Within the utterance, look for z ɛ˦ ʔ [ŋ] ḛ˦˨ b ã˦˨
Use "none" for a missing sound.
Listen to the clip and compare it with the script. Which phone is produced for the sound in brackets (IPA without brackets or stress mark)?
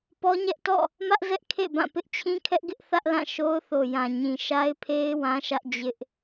kʰ